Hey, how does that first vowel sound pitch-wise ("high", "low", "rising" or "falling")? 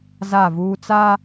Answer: falling